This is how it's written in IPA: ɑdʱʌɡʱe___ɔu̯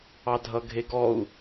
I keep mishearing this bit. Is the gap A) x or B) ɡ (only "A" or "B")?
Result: B